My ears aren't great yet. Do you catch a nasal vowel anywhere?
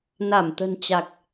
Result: no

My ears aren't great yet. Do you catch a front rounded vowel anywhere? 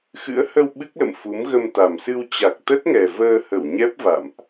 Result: no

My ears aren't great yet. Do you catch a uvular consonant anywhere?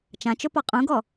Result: yes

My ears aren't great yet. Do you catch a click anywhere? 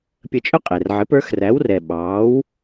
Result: no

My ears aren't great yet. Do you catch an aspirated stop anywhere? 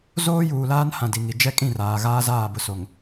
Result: no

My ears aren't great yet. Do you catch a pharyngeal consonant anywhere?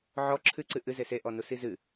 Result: yes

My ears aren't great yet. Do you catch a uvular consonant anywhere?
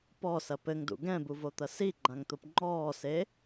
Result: no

